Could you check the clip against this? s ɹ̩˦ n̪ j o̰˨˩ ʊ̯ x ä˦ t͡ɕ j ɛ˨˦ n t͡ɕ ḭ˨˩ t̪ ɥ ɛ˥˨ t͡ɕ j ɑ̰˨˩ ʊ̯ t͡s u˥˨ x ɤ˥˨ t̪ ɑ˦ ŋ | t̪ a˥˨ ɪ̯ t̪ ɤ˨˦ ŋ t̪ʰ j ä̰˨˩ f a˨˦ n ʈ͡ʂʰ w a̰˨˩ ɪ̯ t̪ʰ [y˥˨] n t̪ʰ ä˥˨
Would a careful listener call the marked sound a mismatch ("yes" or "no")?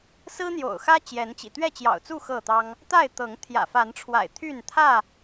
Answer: no